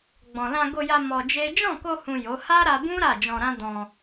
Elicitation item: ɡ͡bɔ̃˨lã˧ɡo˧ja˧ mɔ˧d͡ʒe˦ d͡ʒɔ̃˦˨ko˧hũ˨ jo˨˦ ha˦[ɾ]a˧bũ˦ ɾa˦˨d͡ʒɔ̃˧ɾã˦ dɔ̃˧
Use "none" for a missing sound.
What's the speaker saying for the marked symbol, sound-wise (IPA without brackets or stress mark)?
ɾ